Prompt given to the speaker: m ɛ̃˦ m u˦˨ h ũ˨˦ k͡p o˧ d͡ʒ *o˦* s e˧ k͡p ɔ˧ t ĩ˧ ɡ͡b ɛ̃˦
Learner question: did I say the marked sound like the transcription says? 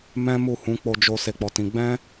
no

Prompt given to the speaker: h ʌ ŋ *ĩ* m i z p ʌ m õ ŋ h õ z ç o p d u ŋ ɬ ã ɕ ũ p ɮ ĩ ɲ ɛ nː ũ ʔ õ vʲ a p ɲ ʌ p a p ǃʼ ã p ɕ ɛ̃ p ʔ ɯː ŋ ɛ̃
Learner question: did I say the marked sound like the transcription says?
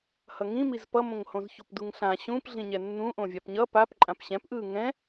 yes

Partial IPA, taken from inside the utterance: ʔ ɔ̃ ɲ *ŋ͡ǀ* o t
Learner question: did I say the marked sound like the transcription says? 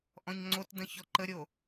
yes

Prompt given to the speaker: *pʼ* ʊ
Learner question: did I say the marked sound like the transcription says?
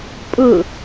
yes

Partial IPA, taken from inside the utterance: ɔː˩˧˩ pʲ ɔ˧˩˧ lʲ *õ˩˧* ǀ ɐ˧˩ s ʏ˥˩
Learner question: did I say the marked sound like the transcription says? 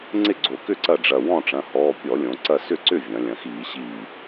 yes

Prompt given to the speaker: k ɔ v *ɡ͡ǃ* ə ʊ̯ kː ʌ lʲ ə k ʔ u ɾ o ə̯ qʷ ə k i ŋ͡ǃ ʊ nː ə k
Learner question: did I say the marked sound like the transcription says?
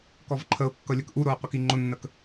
no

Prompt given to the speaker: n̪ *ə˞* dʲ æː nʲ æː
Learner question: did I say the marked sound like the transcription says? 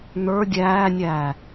yes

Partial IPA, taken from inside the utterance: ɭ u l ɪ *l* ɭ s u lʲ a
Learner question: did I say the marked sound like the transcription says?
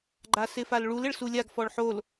no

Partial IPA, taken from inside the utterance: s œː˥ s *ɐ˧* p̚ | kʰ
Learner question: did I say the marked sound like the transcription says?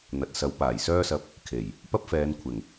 yes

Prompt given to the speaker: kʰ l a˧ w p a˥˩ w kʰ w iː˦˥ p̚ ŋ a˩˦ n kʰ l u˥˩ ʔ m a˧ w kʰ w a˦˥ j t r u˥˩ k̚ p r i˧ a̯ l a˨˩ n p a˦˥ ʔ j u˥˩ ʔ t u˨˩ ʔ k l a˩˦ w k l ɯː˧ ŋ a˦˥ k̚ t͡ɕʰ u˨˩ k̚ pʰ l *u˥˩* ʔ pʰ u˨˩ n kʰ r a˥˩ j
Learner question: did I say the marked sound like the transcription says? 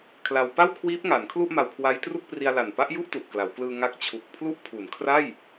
yes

